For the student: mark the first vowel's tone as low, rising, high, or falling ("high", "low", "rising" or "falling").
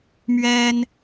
high